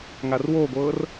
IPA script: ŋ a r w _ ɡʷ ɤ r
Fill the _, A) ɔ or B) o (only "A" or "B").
B